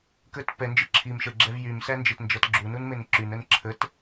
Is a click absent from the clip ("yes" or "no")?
no